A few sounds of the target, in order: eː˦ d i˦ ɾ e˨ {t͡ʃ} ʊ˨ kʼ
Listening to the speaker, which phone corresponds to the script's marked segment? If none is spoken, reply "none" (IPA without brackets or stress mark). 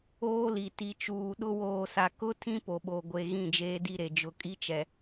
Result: d͡ʒ